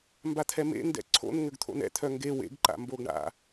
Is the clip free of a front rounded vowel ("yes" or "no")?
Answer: no